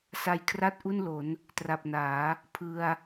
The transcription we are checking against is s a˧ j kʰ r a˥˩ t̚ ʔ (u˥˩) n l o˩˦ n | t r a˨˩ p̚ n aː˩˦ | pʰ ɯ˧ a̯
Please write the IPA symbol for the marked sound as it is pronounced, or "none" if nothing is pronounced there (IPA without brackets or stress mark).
u˥˩